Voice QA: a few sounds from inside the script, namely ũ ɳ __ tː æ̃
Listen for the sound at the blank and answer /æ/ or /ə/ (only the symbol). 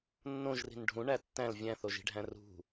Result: æ